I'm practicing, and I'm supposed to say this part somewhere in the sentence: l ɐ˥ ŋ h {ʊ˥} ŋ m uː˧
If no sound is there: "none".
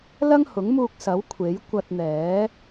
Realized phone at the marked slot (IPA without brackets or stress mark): ʊ˨˥